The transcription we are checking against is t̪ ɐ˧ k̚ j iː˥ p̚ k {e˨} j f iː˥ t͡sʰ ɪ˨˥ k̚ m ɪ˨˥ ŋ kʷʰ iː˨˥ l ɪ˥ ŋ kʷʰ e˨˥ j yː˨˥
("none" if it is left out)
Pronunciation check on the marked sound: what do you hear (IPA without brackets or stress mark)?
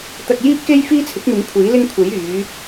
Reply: e˥